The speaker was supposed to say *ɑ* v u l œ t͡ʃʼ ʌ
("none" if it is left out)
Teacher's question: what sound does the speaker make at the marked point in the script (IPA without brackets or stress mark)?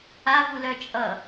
a